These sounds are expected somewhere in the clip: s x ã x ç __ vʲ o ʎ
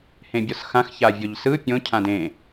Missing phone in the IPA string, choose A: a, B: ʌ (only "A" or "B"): A